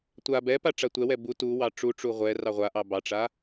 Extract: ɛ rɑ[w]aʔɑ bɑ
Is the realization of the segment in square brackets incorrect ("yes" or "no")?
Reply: yes